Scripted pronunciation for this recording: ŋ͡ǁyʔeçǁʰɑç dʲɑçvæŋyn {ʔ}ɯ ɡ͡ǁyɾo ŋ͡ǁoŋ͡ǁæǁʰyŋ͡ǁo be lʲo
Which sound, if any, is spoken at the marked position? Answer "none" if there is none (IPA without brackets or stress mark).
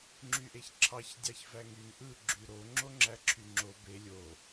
ʔ